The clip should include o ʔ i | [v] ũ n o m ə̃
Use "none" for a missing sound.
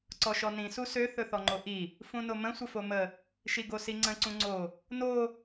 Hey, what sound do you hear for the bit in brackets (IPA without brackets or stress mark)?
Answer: f